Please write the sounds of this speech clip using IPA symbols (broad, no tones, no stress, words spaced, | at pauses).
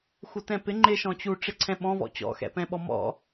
xutɛ̃pɪ ŋ͡ǃɪ ʃɔ̃t͡ɕu ʈ͡ʂɪǀʰɛ̃ɓɔ̃ vɔ̰t͡ɕɔ̰ xɛ̰pɛ̃ɓɔmɔ̰